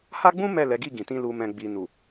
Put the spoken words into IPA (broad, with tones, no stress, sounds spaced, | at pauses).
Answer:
h a˦ ɡ͡b ũ˦ m ɛ˦˨ l ɛ˨˦ ɡ i˦˨ ɡ ĩ˨ t ĩ˧ l u˨ m ɛ̃˨ ɡ͡b i˨ n u˨